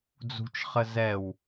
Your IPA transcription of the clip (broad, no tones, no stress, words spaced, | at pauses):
d͡zṳt͡ʃχə zɛw